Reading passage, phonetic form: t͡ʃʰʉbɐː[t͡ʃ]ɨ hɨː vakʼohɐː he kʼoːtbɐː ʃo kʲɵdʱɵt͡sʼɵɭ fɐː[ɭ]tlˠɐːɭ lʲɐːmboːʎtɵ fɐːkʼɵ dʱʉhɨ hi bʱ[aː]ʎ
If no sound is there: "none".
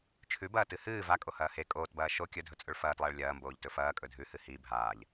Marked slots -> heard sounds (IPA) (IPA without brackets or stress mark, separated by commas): t, none, aː